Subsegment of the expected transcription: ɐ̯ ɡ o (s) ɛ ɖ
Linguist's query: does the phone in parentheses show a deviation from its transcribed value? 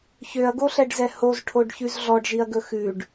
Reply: yes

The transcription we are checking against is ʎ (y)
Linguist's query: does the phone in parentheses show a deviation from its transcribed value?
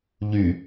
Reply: no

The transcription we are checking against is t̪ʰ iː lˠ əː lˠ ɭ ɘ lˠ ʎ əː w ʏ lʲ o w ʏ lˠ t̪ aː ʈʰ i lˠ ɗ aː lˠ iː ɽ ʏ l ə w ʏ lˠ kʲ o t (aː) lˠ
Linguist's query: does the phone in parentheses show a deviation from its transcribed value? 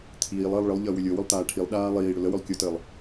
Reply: yes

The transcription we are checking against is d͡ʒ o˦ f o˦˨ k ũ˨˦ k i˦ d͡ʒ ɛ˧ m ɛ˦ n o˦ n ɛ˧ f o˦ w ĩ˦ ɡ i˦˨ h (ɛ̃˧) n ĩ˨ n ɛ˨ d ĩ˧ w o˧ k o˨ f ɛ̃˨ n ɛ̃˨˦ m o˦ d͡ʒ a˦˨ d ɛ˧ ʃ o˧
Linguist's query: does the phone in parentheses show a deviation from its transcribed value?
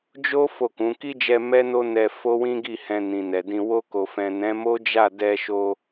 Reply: no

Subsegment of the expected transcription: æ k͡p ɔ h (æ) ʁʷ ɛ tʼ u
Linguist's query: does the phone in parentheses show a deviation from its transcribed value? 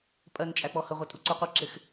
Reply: yes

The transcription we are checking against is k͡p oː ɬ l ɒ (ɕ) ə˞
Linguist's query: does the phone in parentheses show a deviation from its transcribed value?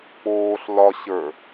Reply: no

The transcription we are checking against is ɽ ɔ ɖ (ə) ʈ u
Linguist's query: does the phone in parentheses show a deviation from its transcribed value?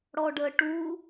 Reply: no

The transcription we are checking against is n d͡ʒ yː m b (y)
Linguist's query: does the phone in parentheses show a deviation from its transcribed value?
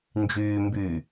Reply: no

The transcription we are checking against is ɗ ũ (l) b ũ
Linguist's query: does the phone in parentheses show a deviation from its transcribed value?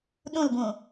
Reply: no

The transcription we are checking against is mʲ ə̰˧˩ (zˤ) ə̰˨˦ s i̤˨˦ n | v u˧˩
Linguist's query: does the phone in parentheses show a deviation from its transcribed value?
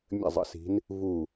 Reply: no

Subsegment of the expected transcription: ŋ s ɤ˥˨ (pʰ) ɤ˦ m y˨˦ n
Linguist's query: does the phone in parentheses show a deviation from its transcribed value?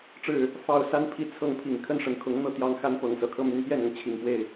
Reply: yes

